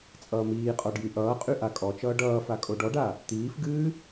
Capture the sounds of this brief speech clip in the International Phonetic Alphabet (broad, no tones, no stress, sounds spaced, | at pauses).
t͡sʼ ʌː m iː qʼ ɔ ɖ j y ʔ ʌː qʼ y ʔ a kʼ ɔ t͡ʃ ʌː ɖ ʌː f a kʼ o ɖ ɔ ɖ a | t̪ iː f ɡ ɨː